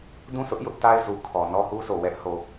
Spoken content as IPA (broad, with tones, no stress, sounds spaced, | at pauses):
d ũ˦˨ s ʊ˦ ʔ j ʊ˦ ʔ t a˦ ɪ̯ z u˨ kʰ ɔ˨ n ɔ˦ h u˦ sʰ o˨ w ɛ˦ ʔ h o˨